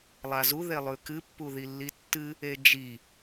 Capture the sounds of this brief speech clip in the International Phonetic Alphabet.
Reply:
lˠ a z u ð e lˠ ʉ k ɨ pː u ð i lː i tː ɨ | e d͡ʒ i

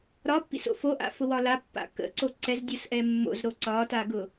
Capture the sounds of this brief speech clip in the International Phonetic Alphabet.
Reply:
ɾ ɒ pː ḭ s o̰ f o ʔ a̰ f ʊ w ɒ l a pː a̰ k ə̰ ǀ o ǀ ɛ z dʲ o s ʔ ɛ mː o̰ z ɾ o ǀ ɒ t a ɡ ʊ

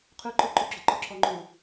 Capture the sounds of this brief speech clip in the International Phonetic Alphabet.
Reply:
qʰ ʉ ǃ ʊ ǃ u ɡ͡ǁ ʊ ǃ ʊ ǁʰ ɔ ŋ͡ǃ u

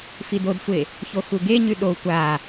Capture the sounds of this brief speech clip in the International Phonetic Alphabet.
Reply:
f i d o d sʷ e | ç o x u ɡ e ɲ ʉ ɗ o tʷ a

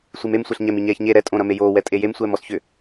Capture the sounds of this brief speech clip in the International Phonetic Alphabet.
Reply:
sʷ i m e m sʷ ɛ ɬ ɲ ɛ m i ɲ ɛː ç ɲ e ɾ ɛ tʼ õ ɾ ɐ m e j oː w ɛ tʼ e j e m sʷ ɛː m ɔ s ç ʏ

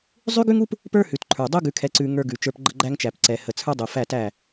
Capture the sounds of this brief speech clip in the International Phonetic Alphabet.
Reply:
zˤ ʉ˦ ɡ ʉ˦ ŋ u˦ p | p ə˞˦ h ʉ˨ t ǃʰ ə˞˨ dˤ u˦ ɡ ʉ˨ kʰ ɛ˨ ǀ ʉ˨ ŋ ə˞˦ ɡ ʉ˨ t͡ʃ ə˞˦ p ɡ͡ǃ ə˦ ɡ͡ǃ æ˦ ŋ t͡ʃ æ˨ p ǀ ɛ˨ h ə˨ t͡sʰ ə˞˦ dˤ u˨ f æ˦˨ t æ˦˨

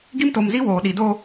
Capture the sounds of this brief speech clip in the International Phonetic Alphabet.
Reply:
ɡ i˦ m t o˨ m z i˦ w oː˨ ɗ i˨ d o˦

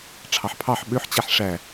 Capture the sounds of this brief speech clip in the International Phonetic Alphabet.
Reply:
ʈ͡ʂʰ ɑ ħ pʰ ɑ ħ ɓ ø ħ t͡ɕ æ ħ ʂ æ

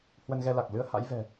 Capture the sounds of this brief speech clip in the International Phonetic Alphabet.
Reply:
h w ə˧ n ɣ ɛ˧ l a˨˩ k̚ l ɨ˧ ə̯ h a̰˧˥ j v ɛ̤˨˩

